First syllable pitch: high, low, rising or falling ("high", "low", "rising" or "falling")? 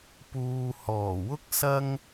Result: low